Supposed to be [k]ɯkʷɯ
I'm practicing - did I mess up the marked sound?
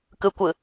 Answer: no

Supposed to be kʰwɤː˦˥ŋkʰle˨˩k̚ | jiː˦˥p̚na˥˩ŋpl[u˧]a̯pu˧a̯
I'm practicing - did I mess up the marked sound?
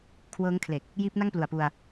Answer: yes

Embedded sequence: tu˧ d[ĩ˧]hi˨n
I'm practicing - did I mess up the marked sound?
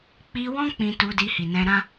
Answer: yes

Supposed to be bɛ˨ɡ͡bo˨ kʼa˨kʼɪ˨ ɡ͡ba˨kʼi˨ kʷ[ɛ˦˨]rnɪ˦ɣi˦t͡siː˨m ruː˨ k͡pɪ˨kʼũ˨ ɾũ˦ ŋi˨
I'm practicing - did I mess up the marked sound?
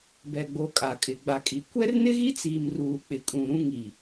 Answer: yes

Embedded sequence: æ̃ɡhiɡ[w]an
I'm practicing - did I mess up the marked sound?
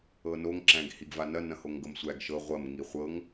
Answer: yes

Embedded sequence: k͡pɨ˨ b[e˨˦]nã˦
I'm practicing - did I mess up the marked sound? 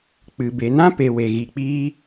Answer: yes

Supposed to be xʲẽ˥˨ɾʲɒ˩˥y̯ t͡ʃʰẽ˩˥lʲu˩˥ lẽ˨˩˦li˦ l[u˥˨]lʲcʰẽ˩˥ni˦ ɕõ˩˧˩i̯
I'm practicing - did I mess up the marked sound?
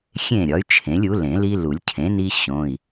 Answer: yes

